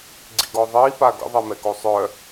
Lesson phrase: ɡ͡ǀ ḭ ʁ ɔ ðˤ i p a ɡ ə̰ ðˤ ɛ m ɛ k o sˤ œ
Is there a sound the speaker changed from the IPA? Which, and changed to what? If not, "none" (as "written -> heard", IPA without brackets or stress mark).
ʁ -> ɡ